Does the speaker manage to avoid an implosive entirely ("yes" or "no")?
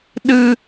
no